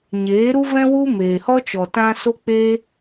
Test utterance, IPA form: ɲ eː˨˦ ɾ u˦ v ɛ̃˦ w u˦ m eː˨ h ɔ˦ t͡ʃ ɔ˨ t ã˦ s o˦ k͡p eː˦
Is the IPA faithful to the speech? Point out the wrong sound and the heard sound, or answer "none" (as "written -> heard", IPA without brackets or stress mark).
none